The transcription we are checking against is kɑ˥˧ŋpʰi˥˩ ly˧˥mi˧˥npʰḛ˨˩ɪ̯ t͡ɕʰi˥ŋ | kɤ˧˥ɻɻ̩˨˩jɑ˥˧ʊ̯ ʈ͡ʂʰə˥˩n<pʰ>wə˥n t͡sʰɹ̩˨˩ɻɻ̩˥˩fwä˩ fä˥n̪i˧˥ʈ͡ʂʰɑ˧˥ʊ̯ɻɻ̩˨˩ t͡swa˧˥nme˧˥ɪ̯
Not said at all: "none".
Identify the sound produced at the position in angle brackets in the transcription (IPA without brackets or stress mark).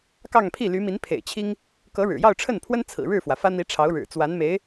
pʰ